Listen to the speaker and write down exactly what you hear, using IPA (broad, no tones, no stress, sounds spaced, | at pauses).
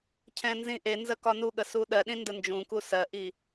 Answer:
cʰ ɛ̃ n z ĩ ʔ e n z ə k ɒ n u ɠ ə s u ɗ ɜ ɗ ĩ n d ə n d͡ʒ ũ k u s ɜ ʔ i